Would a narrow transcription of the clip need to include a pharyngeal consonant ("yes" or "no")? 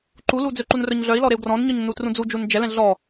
no